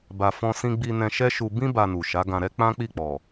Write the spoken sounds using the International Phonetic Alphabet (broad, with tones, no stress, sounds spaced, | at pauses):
b a˧ f ɔ̃˦ s ĩ˦ ɡ͡b i˧ n ɛ̃˧ ʃ ɛ˦ ʃ u˧ b ĩ˦ b a˧ n u˨ ʃ a˨˦ ɡ ã˧ ɾ ɛ˦ k͡p ã˦ k͡p i˦˨ k͡p ɔ˨